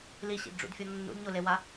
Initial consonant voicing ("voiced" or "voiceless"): voiced